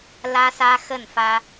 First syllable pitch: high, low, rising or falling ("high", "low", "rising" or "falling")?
high